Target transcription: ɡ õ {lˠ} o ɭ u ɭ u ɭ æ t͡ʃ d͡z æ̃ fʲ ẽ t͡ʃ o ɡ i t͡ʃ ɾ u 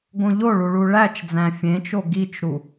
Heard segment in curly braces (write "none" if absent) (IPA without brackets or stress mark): ʎ